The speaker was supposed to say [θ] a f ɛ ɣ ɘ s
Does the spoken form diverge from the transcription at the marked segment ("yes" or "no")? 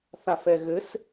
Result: no